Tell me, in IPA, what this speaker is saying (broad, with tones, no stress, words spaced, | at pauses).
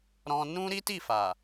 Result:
ɾɔ̃˧nũ˦ ɾi˦ti˦˨fa˨